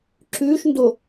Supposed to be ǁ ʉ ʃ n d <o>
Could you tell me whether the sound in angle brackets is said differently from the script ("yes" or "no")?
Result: no